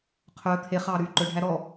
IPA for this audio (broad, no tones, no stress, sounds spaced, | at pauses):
qʰ œ t̪ʰ e χ ɑː ɾ yː ǃ ɵ ɖʱ æ ɾ ɔ